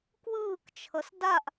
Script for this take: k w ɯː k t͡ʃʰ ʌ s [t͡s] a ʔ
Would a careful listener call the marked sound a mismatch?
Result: yes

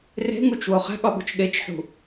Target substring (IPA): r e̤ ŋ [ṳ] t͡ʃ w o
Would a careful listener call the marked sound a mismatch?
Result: yes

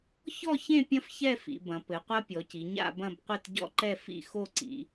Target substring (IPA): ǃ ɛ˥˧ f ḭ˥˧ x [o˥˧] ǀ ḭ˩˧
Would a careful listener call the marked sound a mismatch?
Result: no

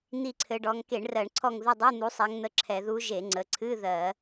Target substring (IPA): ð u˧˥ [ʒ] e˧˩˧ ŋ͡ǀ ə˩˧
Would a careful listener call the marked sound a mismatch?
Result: no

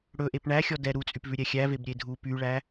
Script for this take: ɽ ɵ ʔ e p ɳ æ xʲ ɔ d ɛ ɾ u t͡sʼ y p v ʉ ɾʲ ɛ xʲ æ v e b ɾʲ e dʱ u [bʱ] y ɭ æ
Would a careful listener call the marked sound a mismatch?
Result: yes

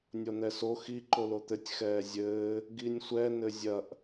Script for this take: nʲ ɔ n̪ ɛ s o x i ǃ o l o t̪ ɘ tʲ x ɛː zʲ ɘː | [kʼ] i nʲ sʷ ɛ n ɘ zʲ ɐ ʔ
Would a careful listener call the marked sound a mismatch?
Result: yes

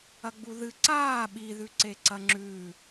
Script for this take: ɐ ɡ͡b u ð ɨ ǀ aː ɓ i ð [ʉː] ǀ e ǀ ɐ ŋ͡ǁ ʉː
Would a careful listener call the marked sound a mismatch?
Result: yes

